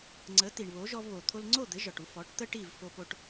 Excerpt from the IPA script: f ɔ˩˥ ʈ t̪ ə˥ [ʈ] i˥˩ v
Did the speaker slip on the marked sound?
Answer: no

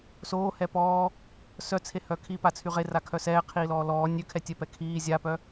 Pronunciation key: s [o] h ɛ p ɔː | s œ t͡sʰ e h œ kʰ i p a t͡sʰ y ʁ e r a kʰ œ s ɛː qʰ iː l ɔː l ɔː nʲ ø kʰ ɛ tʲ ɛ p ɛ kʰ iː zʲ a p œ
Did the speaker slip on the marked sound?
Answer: yes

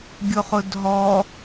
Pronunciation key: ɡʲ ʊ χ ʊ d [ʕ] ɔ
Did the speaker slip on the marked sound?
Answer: yes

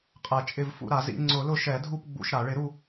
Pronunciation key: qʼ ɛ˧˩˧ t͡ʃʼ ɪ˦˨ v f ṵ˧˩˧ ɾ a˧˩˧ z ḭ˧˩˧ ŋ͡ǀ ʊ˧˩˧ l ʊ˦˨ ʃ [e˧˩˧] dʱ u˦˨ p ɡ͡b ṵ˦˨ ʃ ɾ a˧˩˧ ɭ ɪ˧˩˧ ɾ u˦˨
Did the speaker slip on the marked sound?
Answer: yes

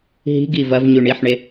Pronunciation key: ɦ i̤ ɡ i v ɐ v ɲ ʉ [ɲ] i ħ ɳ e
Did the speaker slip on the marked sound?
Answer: yes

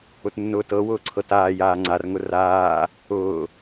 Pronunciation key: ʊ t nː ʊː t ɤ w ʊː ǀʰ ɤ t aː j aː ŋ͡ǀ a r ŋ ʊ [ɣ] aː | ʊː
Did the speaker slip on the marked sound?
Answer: yes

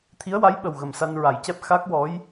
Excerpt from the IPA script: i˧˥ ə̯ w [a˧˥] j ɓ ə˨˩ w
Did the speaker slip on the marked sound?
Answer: no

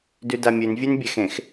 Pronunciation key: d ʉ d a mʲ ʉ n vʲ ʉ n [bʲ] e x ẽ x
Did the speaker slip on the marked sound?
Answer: no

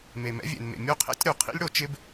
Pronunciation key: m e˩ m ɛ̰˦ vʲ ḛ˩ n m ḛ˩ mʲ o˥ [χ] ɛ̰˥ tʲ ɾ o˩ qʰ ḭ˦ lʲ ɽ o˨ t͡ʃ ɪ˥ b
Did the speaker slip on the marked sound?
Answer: yes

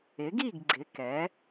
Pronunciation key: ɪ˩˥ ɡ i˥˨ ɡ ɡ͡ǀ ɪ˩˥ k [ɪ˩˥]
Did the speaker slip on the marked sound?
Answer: yes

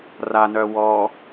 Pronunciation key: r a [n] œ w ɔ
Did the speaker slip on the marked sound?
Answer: no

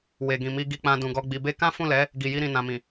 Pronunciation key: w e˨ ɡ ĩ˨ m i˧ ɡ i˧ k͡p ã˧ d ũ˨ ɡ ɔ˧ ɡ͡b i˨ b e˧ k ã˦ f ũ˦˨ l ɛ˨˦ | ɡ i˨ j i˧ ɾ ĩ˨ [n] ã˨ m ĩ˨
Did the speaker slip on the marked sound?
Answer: no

